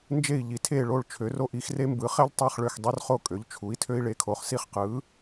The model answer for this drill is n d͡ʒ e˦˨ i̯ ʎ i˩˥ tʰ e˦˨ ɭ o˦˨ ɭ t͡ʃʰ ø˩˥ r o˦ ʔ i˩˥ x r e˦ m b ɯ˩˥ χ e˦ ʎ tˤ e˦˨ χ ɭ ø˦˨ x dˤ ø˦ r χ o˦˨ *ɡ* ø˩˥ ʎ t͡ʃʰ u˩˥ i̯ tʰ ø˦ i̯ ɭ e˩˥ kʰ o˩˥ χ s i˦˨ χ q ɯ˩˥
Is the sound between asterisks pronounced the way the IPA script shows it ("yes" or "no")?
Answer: no